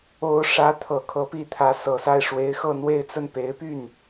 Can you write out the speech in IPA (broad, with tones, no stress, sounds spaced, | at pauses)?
o˧˥ ʊ̯ ʂ ä˧˥ t̪ʰ ɤ˨˩ kʰ ɤ˧˥ p i˧˥ t̪ʰ ä˧˥ s ɤ˨˩ s a˥˩ ɪ̯ ʂ w e˧˥ ɪ̯ x ɤ˥˧ n̪ w e˥˧ ɪ̯ t͡s ə˥˩ n p e˧˥ ɪ̯ p y˥˩ n